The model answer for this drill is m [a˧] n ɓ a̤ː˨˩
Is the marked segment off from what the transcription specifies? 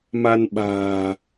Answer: no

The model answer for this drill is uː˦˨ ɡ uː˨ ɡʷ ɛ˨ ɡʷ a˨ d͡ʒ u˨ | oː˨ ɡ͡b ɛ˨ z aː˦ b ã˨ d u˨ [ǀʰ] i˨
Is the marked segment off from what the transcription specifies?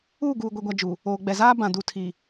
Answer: yes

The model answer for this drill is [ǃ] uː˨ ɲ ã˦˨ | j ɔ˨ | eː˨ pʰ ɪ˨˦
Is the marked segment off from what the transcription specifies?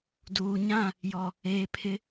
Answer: yes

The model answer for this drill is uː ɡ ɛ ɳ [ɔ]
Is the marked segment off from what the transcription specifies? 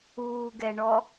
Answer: no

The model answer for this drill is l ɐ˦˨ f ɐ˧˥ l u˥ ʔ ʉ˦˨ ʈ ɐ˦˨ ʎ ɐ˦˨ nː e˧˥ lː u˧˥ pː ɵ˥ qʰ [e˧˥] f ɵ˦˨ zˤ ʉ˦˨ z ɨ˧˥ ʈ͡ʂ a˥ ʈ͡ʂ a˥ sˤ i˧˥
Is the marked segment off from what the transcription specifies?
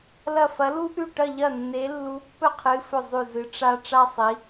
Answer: yes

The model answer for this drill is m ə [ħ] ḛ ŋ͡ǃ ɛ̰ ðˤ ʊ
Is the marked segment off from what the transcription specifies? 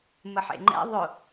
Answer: no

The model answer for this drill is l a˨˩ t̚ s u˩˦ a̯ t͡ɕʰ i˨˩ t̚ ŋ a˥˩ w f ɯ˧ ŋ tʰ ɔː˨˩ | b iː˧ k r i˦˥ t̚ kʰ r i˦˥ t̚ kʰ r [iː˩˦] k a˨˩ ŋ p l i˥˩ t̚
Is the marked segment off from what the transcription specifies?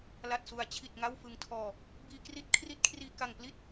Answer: yes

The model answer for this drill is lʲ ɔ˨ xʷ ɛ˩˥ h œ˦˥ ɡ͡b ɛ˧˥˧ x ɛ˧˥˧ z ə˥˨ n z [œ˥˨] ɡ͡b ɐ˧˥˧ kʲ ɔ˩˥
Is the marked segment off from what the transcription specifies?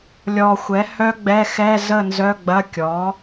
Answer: yes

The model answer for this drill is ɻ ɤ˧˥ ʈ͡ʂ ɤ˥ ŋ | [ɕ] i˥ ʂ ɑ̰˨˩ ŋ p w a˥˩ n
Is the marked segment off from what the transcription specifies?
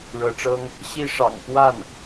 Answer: no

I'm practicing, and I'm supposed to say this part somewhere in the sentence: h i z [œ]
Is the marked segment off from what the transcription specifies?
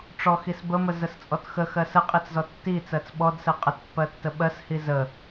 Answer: yes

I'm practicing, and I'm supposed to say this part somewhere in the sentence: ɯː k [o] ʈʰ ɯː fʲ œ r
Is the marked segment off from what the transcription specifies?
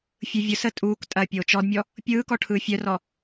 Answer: yes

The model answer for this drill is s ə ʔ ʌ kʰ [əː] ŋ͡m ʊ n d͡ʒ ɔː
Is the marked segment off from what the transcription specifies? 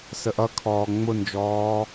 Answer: yes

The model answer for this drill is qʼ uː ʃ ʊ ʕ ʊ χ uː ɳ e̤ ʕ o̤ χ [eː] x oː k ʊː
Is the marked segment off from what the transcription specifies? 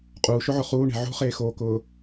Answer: no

